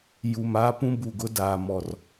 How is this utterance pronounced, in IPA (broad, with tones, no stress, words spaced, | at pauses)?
ju˨m aː˦pũ˦ bu˨ɡʊ˦daː˨ mɔ˦˨r